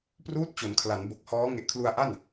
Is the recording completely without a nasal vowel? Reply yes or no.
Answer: yes